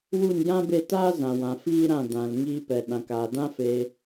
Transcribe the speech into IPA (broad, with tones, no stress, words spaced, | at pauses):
wu˦˨njã˦be˦˨taː˦ zã˨wã˨ fiː˦ɾã˦˨ dã˨l ŋiː˧pɛ˨ɗã˨k aː˨dã˦fe˧